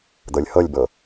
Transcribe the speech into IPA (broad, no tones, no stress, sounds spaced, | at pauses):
d̪ ɤ lʲ h ɤ lʲ b ɤ